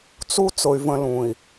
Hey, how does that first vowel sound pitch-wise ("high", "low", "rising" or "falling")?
high